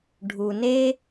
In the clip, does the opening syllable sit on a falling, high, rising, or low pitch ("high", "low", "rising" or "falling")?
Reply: low